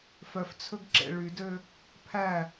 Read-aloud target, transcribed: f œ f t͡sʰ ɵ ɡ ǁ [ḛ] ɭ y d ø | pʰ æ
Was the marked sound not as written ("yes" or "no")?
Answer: no